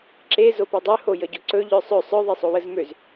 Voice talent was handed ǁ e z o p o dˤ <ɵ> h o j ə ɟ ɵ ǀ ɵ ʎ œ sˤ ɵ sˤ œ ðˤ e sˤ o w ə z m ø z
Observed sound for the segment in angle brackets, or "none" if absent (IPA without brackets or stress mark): ø